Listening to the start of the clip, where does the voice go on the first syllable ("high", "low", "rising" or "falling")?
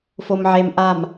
low